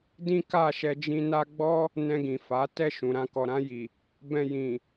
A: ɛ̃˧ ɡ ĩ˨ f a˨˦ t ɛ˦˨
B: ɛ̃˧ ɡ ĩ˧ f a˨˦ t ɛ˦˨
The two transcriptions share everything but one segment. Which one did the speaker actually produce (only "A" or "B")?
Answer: A